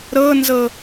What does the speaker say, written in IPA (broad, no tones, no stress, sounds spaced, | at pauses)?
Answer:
ɾ ɤ n z ɤ